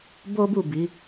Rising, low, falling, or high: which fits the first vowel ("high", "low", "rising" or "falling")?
high